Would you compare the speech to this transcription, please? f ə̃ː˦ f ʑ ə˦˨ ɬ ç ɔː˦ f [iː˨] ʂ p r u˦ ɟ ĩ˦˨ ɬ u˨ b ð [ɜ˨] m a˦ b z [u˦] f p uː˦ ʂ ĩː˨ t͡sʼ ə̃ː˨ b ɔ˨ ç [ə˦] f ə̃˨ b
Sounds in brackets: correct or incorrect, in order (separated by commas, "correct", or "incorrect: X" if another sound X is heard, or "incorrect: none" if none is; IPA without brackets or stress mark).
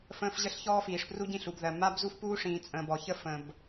correct, correct, correct, correct